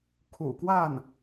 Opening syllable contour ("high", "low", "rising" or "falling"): low